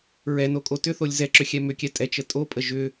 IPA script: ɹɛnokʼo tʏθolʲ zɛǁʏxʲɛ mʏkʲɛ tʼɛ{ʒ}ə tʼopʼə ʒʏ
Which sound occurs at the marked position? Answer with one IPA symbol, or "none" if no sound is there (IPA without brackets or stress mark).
t͡ʃ